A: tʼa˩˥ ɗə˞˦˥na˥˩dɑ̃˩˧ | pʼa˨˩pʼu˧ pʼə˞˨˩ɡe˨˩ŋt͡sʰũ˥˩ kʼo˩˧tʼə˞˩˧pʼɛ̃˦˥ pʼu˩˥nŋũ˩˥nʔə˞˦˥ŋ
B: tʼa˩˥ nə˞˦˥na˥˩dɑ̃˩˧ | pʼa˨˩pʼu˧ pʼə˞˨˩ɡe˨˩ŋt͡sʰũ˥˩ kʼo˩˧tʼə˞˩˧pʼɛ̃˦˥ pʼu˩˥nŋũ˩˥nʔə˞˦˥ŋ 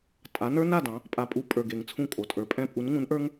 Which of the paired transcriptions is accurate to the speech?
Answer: B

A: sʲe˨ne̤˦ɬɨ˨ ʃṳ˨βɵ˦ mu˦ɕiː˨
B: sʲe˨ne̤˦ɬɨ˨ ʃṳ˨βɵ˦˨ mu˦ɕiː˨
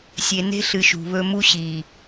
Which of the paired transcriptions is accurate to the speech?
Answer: A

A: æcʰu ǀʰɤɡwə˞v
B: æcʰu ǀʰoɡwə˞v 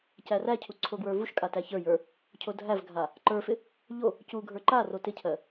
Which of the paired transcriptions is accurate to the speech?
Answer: B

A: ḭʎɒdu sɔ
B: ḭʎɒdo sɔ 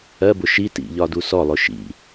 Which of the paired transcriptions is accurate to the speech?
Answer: A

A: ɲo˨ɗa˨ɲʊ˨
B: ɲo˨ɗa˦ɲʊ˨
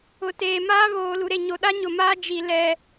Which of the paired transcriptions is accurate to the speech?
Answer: B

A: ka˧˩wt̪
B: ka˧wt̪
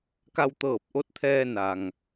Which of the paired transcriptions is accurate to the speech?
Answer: B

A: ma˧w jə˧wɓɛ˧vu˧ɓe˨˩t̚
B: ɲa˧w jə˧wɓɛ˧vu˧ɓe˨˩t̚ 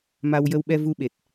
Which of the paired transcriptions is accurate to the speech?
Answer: A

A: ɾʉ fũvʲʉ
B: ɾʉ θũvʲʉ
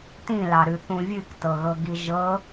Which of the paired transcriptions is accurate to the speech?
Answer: B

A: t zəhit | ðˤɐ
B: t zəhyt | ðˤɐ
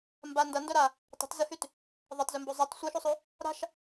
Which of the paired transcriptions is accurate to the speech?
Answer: B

